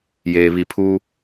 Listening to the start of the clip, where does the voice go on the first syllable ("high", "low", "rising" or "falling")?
low